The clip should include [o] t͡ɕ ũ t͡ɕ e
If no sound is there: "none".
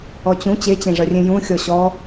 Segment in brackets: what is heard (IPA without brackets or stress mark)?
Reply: ɔ